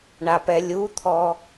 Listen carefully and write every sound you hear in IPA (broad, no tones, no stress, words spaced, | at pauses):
ɳapɛlʲut̪ʰɔ